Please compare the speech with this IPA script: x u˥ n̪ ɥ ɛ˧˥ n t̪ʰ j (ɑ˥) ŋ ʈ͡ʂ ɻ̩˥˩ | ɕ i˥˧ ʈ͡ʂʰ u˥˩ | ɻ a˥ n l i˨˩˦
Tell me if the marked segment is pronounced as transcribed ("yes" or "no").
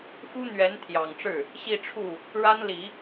no